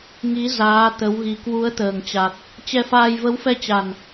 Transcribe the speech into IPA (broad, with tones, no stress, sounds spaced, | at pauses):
ŋ i˨˦ z aː˨˦ t̪ ə˨˦ w ɣ i˨˩ k w u˨˦ ə̯ t̪ əː˨˩ ŋ t͡ɕ a˨˩ k̚ | t͡ɕ ɛ˧ f aː˧ j v ə˨˦ w f ɛ˧ t͡ɕ a˨˩ n